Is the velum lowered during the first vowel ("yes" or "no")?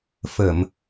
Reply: no